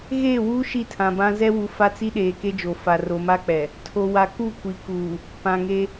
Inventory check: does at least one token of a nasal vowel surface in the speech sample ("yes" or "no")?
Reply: yes